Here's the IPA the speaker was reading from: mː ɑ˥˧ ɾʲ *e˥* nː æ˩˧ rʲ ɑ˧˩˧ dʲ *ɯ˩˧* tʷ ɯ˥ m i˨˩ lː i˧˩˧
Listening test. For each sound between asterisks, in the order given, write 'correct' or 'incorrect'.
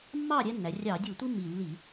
incorrect, incorrect

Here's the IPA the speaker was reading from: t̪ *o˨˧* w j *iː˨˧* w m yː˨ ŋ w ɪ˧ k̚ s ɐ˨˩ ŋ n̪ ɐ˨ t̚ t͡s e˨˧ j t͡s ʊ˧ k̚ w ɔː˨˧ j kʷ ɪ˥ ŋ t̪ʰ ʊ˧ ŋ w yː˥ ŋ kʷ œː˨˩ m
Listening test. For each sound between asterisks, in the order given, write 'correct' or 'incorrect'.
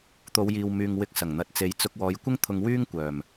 correct, incorrect

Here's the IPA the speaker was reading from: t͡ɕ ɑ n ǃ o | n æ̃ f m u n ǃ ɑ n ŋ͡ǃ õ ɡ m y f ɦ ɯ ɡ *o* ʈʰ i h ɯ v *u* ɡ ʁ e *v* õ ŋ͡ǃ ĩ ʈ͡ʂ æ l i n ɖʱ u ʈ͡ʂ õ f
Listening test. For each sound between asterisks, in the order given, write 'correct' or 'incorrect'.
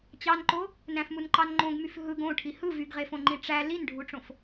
incorrect, incorrect, incorrect

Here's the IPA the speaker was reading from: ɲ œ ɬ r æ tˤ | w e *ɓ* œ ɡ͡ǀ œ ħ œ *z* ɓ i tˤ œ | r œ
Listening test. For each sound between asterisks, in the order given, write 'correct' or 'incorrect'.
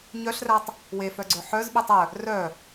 incorrect, correct

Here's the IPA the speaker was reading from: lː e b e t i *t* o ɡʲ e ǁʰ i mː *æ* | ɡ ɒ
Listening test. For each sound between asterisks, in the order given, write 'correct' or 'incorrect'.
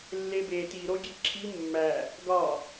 incorrect, correct

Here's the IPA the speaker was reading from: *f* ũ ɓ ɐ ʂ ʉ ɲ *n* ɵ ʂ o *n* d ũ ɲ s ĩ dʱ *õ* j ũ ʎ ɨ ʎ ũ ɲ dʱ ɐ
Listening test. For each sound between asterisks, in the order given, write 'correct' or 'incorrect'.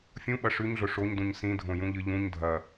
incorrect, incorrect, incorrect, correct

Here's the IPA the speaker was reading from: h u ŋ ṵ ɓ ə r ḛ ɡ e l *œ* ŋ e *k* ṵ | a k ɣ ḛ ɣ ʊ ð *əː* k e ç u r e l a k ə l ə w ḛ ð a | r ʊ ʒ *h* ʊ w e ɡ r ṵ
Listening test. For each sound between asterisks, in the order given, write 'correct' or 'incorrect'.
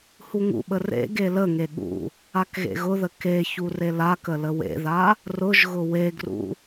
incorrect, incorrect, incorrect, incorrect

